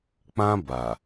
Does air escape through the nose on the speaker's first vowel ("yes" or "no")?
yes